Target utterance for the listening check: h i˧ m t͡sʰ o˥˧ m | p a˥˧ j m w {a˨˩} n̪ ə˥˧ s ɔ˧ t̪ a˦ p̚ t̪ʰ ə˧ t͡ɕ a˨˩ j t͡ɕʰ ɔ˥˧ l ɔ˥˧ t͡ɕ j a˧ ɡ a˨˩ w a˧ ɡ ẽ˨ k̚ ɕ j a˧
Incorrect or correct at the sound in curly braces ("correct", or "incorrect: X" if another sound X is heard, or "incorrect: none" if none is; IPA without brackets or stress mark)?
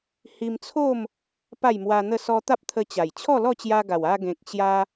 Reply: incorrect: a˧